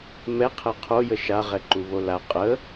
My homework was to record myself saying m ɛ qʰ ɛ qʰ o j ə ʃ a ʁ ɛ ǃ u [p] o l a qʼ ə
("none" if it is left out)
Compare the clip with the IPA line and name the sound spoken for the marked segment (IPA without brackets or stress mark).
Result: β